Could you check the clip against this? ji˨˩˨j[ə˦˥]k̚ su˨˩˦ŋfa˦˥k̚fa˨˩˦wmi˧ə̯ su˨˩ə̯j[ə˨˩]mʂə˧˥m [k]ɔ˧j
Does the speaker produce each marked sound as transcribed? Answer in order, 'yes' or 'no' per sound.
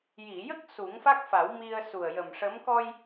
yes, yes, yes

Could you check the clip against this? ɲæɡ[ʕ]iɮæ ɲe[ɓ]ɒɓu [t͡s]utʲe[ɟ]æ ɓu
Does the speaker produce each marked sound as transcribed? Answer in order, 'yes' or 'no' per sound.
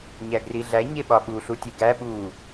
no, yes, no, no

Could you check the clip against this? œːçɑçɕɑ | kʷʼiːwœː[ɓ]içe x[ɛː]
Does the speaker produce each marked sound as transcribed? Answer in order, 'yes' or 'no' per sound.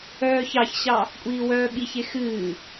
yes, no

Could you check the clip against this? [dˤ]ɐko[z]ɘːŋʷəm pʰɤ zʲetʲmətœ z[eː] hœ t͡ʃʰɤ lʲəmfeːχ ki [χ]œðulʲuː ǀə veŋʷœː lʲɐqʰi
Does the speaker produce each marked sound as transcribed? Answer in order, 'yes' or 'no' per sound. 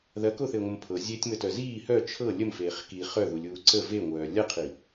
no, no, no, yes

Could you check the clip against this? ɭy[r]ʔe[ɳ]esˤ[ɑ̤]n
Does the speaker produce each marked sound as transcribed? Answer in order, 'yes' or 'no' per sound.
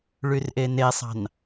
yes, no, yes

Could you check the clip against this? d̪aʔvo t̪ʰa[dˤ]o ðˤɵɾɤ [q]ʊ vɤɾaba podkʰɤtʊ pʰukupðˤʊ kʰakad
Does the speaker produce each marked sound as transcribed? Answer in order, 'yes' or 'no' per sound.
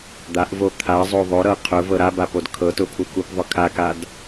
no, no

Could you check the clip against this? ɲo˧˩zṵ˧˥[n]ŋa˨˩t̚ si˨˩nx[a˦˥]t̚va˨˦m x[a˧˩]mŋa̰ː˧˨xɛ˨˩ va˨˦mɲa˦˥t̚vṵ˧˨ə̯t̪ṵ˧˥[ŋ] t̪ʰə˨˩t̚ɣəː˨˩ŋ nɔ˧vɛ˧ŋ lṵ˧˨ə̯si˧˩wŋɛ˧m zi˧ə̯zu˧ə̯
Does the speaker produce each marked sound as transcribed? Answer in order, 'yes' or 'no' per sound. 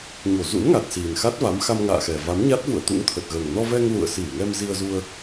yes, yes, no, yes

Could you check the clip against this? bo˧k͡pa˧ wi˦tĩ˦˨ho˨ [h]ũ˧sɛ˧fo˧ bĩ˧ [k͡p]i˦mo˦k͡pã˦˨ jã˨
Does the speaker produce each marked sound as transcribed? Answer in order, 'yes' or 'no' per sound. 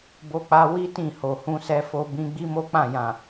yes, no

